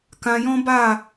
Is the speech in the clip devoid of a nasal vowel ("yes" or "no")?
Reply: no